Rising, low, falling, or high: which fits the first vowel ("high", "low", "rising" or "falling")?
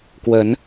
rising